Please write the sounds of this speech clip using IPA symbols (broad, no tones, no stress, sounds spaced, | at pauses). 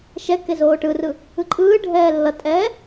ʃ ɛ k e z oː ʈ ɯ r ɯ | ɯ ǃʼ ɯː ɖʱ ɛː lː ʌ tʼ ɛː